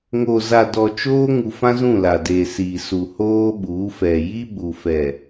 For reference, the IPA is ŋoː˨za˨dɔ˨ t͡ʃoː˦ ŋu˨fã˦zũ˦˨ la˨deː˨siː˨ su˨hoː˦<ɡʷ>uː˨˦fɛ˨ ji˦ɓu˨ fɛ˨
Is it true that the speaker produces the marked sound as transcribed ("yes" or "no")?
no